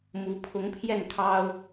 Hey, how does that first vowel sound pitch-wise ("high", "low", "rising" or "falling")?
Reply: rising